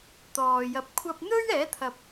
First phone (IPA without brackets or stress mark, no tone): t̪